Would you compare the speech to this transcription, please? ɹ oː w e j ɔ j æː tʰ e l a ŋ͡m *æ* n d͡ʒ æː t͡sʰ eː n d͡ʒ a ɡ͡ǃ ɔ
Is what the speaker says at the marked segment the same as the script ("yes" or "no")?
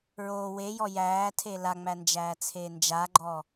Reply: yes